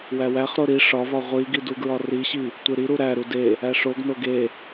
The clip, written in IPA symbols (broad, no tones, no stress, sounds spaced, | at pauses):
w æ w æ χ ɾ o ɾ i ʂ ɒ v ɒ ʁʷ i ɡ i d u ɡ ɹ ɒ r i ɕ i | tʷ e ɾ i ɾ u ɾ æ ɾ u d e | æ ʂ o ɡ n o ɡ e